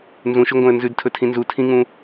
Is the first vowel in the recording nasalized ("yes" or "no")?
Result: yes